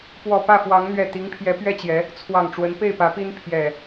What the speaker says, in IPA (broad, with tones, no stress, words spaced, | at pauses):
pwɔ˨˩pä˥˨fwɑ˨˦ŋn̪ɥɛ˨˩ t̪i˨˦ŋpʰjɛ˨˦pɥɛ˥˨t͡ɕjɛ˨˦ | t͡sʰwɑ˨˩ŋʈ͡ʂwə˨˦n pe˥˨ɪ̯pä˨˦pi˦n pʰjɛ˨˩